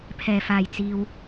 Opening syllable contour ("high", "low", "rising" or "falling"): low